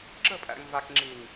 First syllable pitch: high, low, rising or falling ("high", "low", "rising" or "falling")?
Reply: falling